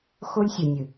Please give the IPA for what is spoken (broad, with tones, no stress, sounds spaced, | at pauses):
x o˦ lʲ sʲ o˨ nʲ ɨ˨